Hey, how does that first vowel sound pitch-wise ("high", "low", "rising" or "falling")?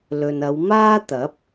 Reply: low